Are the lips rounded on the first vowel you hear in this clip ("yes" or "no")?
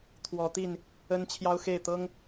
yes